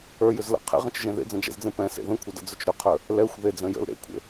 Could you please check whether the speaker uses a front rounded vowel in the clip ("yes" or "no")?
yes